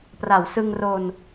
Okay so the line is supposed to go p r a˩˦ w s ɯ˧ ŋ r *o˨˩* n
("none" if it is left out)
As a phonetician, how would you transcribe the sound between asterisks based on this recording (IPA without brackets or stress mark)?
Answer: o˧